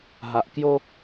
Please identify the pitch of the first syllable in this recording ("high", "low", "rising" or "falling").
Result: low